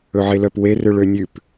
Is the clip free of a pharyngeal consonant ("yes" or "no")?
no